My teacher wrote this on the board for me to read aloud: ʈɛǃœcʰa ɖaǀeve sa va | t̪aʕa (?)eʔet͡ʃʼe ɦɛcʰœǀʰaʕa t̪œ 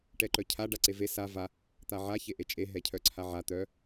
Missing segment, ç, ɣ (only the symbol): ç